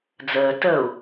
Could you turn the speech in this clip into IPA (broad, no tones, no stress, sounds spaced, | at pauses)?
d͡z əː t ə u̯